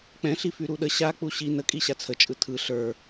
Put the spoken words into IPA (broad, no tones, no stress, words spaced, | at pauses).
k͡pɛ̃ɬi fyɾuɗə ɕak͡pu ɕi nəkʼi ɕat͡sʰət͡ʃʼɯ tʰɯ ɬə˞